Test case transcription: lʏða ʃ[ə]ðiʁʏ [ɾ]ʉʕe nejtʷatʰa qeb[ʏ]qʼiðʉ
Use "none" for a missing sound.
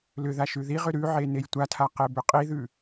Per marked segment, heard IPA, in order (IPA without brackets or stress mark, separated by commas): ʉ, ɾ, ʏ